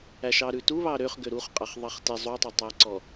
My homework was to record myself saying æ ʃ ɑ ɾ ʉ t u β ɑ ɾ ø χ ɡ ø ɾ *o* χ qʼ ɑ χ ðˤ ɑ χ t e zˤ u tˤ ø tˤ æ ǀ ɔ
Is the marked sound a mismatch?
yes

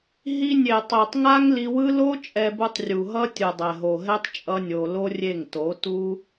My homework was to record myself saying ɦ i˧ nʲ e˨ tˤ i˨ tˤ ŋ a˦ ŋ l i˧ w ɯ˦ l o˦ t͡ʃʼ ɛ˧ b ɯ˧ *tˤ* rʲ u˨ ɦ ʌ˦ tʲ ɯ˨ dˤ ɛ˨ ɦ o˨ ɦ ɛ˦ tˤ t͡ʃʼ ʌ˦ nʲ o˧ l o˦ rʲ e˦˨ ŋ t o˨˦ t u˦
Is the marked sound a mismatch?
no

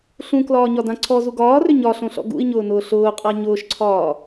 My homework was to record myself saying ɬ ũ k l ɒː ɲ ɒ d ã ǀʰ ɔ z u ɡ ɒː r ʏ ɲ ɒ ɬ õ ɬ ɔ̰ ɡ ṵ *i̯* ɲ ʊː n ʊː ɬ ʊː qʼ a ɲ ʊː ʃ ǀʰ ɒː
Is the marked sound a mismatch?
no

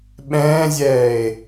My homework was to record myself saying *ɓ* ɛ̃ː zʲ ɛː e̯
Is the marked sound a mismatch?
no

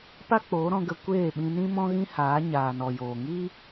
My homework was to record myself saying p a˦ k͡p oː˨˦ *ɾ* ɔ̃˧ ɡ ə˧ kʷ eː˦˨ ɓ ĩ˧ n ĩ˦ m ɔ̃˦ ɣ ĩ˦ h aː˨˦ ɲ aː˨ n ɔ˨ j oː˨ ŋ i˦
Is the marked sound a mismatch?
no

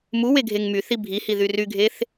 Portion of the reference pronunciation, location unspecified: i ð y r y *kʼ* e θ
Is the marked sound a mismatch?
yes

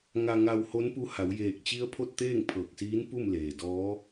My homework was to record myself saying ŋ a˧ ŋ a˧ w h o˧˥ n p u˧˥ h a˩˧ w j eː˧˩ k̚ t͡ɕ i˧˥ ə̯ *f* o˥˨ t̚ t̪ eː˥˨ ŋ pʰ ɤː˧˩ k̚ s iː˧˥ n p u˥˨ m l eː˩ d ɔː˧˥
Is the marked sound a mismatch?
yes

